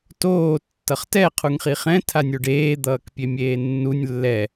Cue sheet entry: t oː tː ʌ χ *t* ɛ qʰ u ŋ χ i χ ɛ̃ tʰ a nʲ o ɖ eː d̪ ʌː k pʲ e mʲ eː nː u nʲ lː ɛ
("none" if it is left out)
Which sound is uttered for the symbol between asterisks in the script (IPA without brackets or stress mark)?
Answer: t